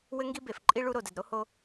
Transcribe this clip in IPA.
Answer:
w ɘ˦ ŋ ɡ i˦ b e˨ f ǃʼ i˦ ɭ u˦ ɾ o˨ d ɘ˨ d ɾ o˦ h o˦

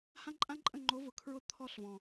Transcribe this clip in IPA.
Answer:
h ã˦ ǃʼ ã˦ ǃʼ ə̃˦˨ ŋ͡ǃ o˨˦ v ʊ˨ kʰ ɹ ʊ˦ t̪ʰ ɔ˦ ɬ v ɔ̃˨

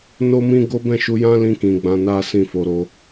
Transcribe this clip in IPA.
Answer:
n o˦ m ĩ˦ ɡ o˦ b ɛ̃˦˨ ʃ u˧ j ã˦ l ĩ˧ k ĩ˨ ɡ͡b ã˧ n a˦ s ĩ˦˨ f o˧ ɾ o˧

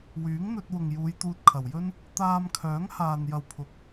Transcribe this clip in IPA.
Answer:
w yː˨˥ ŋ n̪ ɵ˧ t̚ w ʊ˨ ŋ j uː˨˧ j t̪ uː˧ t̚ kʰ ɐ˨˩ w j ɵ˥ n | t̪ aː˧ m kʰ œː˨˥ ŋ h aː˨ n j ɐ˨ w pʰ ʊ˨˥ k̚

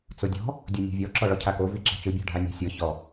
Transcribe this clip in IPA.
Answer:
t͡s o dʲ ɔ̤ | dʲ ɤ nʲ e̤ vʲ ɔ ǁ ɔ ɭ ɔ cʰ a k o v i ǁ a̤ t͡ʃ ɯ bʲ ɔ̤ ɖʱ a nʲ a̤ sʲ ɤ ç ɔ

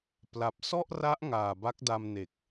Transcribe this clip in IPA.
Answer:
p l a˨˩ p̚ s ɔ˥˩ ʔ r a˦˥ ʔ ŋ aː˨˩ b a˦˥ k̚ d a˧ m n e˨˩ k̚

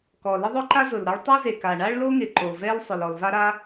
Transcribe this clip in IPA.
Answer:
k ɔ˩ l ɪ˥ ðˤ ʊ˥ ǃ a˥ z ʊ˩ l ɾ ɔ˥ ɭ tˤ u˥ z e˩ k a˩ ɳ a˥ ɭ l o˥ ŋ ɪ˩ ǃ o˩ v ɛ˥ l sˤ ʊ˩ l ɔ˩ l v a˥ ɾ a˥

